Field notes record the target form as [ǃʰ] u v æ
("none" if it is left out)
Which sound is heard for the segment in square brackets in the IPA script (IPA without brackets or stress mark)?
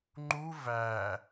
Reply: ŋ͡ǃ